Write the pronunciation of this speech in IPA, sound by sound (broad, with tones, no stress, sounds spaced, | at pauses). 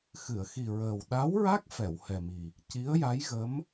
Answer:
x ɨ˨˩˨ ə̯ x i˨˩ ɹ əː˨˩ w ɗ a˧˥ w ɹ a˦˥ k̚ f ɛ˨˩˨ w h ɛ˨˩ m i˨˩ | c i˧˥ ə̯ j a˧˥ j ɣ ə˧˥ m